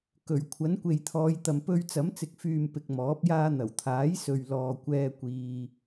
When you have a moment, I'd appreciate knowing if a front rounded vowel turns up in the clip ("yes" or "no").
yes